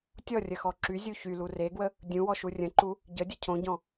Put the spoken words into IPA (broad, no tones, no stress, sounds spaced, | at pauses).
tʲ ɔ rʲ ə x ɔ ǁ y zʲ u ç y l u r e ɡ w ə | dʲ ũ w ɔ ʃ u rʲ ə̃ ǃ u | ɟ ə dʲ ə cʰ õ ɟ ɔ̃